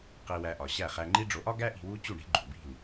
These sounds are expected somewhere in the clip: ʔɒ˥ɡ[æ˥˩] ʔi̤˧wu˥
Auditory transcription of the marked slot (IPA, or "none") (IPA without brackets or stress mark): æ˥